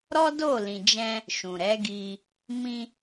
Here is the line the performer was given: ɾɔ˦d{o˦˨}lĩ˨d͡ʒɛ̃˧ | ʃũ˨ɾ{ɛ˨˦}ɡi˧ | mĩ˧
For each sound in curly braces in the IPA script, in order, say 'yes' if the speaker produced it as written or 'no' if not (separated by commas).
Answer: yes, yes